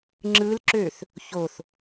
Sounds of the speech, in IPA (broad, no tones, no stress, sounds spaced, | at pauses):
ŋ͡ǁ ɯ l ǁ ø θ | ç o θ